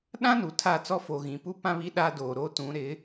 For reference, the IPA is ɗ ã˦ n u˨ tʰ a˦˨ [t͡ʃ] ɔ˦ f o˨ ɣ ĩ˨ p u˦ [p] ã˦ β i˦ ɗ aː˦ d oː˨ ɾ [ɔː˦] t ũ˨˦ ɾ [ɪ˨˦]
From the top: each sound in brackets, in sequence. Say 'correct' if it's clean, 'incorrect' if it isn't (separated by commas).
incorrect, correct, incorrect, correct